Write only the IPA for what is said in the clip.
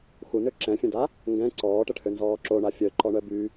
xunø ǁɛ̃fʲə̃da | ŋɡɛ̃ ǀɔːʈəʈʰønzɔː ǁoɳa fʲœǃɔɳœ by

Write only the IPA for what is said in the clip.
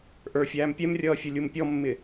ʔə˞fʲæːm pʲɛmrʲʌːfʲʊ lʲumpʲɔmːɪ

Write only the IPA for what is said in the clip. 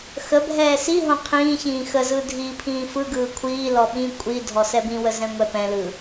xəbʱɛː siɦõ qʰĩːçĩː xəzɯ dʱiːpʰĩːfɯɡɯː kʷʰiːlɔ ɓĩ kʷʼi dʱɔsɛbĩwə zɛ̃ŋʷɛpɛ̃lɯ

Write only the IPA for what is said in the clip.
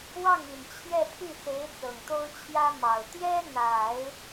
wɑ˥˩ŋi˨˩n t͡ɕʰjɛ˥˧pʰy˥˩se˧˥ɪ̯ t͡sɤ˨˩ŋt̪o˥ʊ̯t͡ɕʰjä˥ mɑ˨˩ʊ̯ t̪jɛ˥n̪a˨˩˦ɪ̯

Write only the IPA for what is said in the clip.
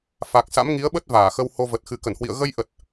fa˨˩k̚sa̰˧˥mŋi˨˦ə̯ɓə˦˥t̚ vaː˧˩xə˧who˧və˨˩t̚ xɨ˨˩kə˧˩nhwḭ˧˨ə̯ ɣə˧jʔə˨˩t̚

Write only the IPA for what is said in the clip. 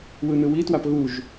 wɯnɯwitwap ɣuʒ

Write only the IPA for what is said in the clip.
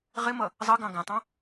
ʁɪmʌ | zˤʌɡɑ̃ ɡæ̃tˤɑ̃

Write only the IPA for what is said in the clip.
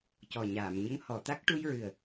cɔ˨˩ ɲaː˨˩˨mɲə˧˥ŋ hɔ˨˩˨t̪a˦˥k̚ ʈu˧jɹɨ˨˩ə̯

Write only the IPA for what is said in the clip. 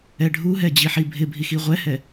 ɛɖʱuɦɛ d͡ʑiħibʱɪbʱi xiʁʷɛhɛ

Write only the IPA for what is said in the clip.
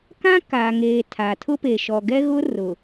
kã˦ka˨ŋeː˨ tʰa˨tʰʊ˦pe˨ ʃɔ˨ɡɛ˦ɣʊ˦rʊ˨

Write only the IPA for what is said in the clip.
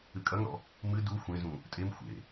ɨkʼɐŋɾɔ̰ | mɨ du xʷẽzũ | tʼem xʷḛ

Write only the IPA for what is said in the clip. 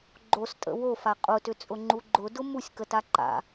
ɡ͡ǃostʼə̰ wofa qʼʊtʏt͡sʼʊŋ͡ǃu ɡ͡ǃʊdʊ musʲkəta ǃa̰

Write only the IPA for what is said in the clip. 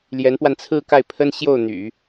ljɛ˧˥npwa˧nt͡sʰɹ̩˥˧ka˥˩ɪ̯ pʰə˥nɕjo˥˩ʊ̯n̪y̰˨˩˦

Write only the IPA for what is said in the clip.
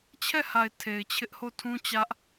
t͡ɕʰɛ˦˨ha˨ɪ̯ tʰe˨ɪ̯t͡ɕʰɪ˦ʔho˦˨ tʰũ˦t͡ɕä˦ʔ

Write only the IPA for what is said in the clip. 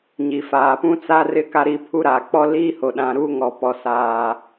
ɲi˨faː˨pũ˦t͡sa˦ rɪ˦ ka˦ɾiː˦pʰu˦ɾaː˨ k͡pɔ˦liː˦ho˨ɗã˨ ɾuː˦ŋɔ˨pɔ˨ saː˨

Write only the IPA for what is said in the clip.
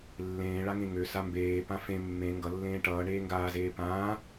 lːẽː ɭaŋẽŋø sambeː pãfẽ mːẽ ŋɡʌlːẽː ʈʌː ɳeːŋɡaːzeː pãː

